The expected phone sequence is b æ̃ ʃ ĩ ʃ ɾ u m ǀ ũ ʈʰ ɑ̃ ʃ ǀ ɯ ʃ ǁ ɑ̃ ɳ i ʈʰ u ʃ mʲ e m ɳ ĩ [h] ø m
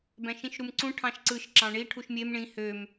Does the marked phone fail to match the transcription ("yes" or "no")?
no